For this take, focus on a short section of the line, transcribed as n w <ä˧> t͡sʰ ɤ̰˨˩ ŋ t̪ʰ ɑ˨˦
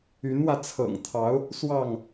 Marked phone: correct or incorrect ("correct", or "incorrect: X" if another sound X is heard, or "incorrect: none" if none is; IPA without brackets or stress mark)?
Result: correct